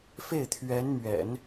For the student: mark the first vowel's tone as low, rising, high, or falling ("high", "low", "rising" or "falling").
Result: falling